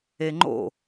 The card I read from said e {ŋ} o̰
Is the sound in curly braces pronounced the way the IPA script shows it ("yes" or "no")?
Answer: no